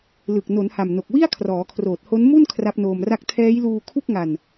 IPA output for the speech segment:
l ɯ˨˩ k̚ n o˩˦ n h a˨˩ m n o˨˩ k̚ w i˥˩ a̯ kʰ r ɔː˩˦ kʰ r oː˨˩ t̚ h o˦˥ n m u˥˩ n kʰ r a˦˥ p̚ n oː˧ m r a˥˩ k̚ tʰ ɛː˦˥ j l uː˧ kʰ u˥˩ k̚ ŋ a˧ n

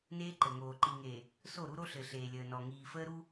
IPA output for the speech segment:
n eː˦ ǃ ɘ˨ ŋ oː˨ ǃ i˨ ŋ eː˨ | s o˦˨ ɾ u˦ ɾ o˦ ɬ ɘ˨ ɬ eː˨ lʲ əː˨ n ɔ˨ ŋ iː˨ f əː˦ ɾ u˦

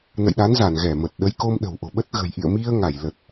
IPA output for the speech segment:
n ə̰˧˨ j ɗ a˨˦ n z a˧˩ n ɣ ɛ˧˩ m ə˨˩ t̚ ɗ ə˨˦ j k o˧ m ɗ ə̤˨˩ w ʔ o̤˨˩ ɓ ə˦˥ t̚ ɣ ə̤˨˩ j ʔ ḭ˧˨ ə̯ m i˧ ə̯ ŋ a˧˩ j l ə˨˩ t̚

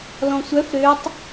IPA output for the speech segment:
l ɔ̃ sʷ œ f ɾ ø tˤ

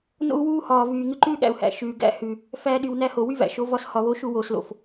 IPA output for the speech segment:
n o̰˦ u̯ w uː˦ h ɒː˨ v yː˨ ŋ ʉ˧ ǃ ʉː˦ ɠ æ̰˨ u̯ h æ̰˨ ʃ ʉː˨ ɡ æ̰˦ h ʉ˨ | f æː˧ ɗ y˨ w n æ˦ h o˨ w y˦ v æ̰˨ ʃ o˨˦ v ɒ˧ s h ɒ˨ β o˧ ʃ u˧ w oː˨ s l o̰˨ f

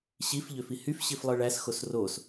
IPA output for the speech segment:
ɕ i f ʎ ø f i h y f ɕ i f lˠ ɯ ɭ æ s x o s r o s

